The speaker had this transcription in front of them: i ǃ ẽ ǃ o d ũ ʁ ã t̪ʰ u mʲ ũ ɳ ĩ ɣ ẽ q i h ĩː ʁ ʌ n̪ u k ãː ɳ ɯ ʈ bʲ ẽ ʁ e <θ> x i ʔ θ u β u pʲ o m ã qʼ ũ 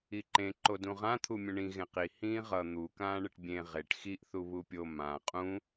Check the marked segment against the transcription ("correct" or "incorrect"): incorrect